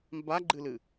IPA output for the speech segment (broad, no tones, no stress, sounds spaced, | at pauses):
m b a ɡ͡ǃ ɨ l ɨ